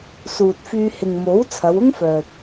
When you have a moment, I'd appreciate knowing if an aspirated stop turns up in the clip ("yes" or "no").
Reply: yes